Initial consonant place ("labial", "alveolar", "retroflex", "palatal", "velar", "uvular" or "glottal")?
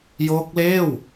palatal